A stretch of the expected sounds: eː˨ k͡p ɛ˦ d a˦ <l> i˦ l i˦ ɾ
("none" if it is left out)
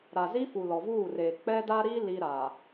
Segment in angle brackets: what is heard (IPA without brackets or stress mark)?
ɾ